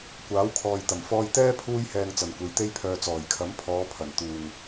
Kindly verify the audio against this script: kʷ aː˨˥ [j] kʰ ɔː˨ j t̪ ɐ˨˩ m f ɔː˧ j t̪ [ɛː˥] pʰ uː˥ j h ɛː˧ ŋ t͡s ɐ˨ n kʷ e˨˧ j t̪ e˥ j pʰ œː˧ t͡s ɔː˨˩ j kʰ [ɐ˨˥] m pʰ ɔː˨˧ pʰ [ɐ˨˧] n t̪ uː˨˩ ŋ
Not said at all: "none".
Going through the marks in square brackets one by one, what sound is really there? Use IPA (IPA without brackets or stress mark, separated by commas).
w, ɛː˥, ɐ˨˥, ɐ˨˩